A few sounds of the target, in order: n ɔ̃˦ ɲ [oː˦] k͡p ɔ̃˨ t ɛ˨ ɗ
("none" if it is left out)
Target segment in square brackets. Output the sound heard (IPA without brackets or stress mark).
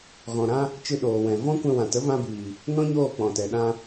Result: oː˦˨